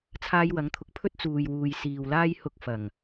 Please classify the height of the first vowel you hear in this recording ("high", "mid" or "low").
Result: low